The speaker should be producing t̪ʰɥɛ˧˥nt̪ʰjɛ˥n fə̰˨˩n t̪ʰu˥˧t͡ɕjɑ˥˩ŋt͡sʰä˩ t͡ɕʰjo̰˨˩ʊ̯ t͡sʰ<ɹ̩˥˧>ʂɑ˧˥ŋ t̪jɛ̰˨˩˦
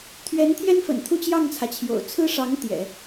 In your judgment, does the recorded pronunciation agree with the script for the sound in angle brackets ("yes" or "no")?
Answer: no